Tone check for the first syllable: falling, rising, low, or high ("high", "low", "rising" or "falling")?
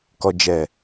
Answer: low